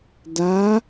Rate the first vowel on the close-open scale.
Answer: open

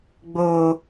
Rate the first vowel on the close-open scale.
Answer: mid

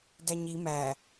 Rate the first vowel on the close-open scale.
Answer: open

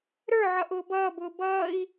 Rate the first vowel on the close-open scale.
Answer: mid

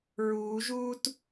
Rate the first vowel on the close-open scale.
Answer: close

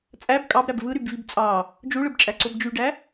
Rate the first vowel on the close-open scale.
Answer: open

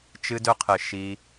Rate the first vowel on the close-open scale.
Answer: close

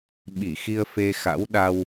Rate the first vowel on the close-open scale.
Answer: close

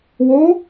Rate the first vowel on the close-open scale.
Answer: mid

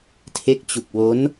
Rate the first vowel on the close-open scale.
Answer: mid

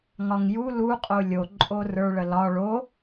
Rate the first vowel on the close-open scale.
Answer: open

